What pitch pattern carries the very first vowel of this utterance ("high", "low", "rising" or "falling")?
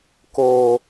low